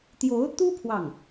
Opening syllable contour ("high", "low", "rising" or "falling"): rising